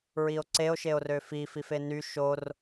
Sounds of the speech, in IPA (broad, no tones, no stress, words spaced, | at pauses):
ɹio̯ǀeo̯ ʃeo̯røfi fifeny ʃor